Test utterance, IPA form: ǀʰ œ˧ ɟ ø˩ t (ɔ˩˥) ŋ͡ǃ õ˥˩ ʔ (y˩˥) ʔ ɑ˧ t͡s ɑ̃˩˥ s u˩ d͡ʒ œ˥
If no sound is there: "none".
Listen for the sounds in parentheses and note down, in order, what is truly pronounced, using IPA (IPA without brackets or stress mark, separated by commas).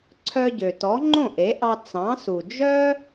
ɔ˩˥, e˩˥